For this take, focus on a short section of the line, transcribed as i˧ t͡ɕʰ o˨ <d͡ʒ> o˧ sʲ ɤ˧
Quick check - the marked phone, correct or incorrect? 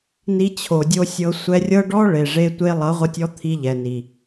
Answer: incorrect